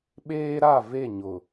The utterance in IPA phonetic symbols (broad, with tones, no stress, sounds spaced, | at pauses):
ɓ eː˦ ɾ a˦˨ v e˦˨ ɲ ʊ˨